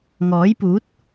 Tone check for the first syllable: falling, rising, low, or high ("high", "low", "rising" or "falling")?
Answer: rising